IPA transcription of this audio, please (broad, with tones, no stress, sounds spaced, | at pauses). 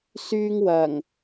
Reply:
s yː˥ ŋ w ɐ˨˩ ŋ